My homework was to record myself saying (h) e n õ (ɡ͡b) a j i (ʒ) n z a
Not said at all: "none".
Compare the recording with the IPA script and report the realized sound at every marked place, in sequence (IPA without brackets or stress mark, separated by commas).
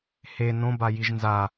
h, b, ʒ